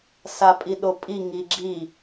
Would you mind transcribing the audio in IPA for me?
s a pʼ i ɗ o pʼ i ŋ i ɡ͡ǁ i

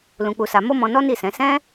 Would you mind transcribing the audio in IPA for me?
l ũ˧ k͡p u˧ s a˧ m o˦ m ɔ̃˧ n ɔ˦ n i˦˨ s ɛ̃˨˦ s ɛ̃˦

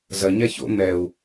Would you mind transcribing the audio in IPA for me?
z ɐ ɲ a ç o̰ n̪ ɛ u̯

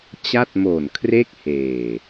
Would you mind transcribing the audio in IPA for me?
t͡ɕ a˥˩ t̚ m o˨˩ n kʰ r e˥˩ k̚ h eː˨˩

